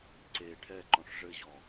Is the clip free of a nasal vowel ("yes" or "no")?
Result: no